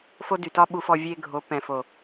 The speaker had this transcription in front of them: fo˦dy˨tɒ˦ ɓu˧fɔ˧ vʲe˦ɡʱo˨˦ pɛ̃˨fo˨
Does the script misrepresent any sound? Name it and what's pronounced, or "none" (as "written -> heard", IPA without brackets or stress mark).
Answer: none